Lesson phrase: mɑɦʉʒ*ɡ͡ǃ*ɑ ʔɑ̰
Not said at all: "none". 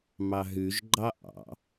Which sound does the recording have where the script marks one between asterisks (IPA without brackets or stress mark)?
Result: ɡ͡ǃ